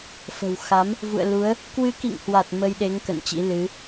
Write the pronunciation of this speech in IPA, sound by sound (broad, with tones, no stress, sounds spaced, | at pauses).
f ə̤˨˩ w x a˨˦ m | v ṵ˧˨ ə̯ l u˨˦ ə̯ | k w ɨ˨˦ k ḭ˧˨ ŋ h w a˨˩ t̚ m ə˧ j ɗ e˨˦ ŋ k ə̰˧˨ n t͡ɕ ḭ˧˥ l ɨ˨˦